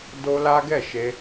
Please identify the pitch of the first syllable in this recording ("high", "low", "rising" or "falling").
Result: high